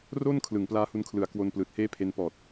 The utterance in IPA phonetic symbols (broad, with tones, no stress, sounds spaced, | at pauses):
r o˥˩ n kʰ l ɯ˩˦ ŋ p l aː˦˥ h u˧ n kʰ l ɯ˨˩ a̯ k w o˧ n p l ɯː˨˩ t̚ h eː˥˩ pʰ e˧ n p ɔː˨˩ t̚